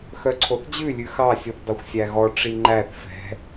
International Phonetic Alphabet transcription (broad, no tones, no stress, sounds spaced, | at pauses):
x œ ǀʰ o θ d͡ʑ ʉ lʲ ʉ x ɑ sʲ u θ dˤ ø xʷ sʲ æ ɣ ɔ ʈ͡ʂ i ŋ͡ǃ æ θ f ɛ̤